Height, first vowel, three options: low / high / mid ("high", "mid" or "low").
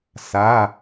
low